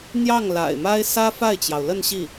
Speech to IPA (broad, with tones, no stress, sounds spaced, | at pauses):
n̪ j ɑ˥˩ ŋ l a̰˨˩ ɪ̯ m a˥ ɪ̯ s ä˥ f a˥˩ ɪ̯ t͡ɕ j ɑ˩ ʊ̯ l ə˥˧ n ɕ i˥˩